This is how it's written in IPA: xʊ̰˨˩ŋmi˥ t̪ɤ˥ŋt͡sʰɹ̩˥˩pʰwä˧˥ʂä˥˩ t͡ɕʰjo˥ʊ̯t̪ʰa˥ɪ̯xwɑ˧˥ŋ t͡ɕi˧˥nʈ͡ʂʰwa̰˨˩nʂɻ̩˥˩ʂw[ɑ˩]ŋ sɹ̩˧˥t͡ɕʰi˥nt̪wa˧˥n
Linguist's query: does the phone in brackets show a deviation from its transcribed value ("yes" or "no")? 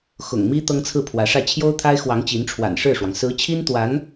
no